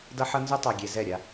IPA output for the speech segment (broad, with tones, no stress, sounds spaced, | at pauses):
d ʌ˦ ħ ʌ˦ n z ʉ˦ tˤ a˨ ɡʲ e˨ z ɛ˦˨ ɾʲ a˦